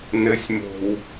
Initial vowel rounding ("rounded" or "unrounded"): unrounded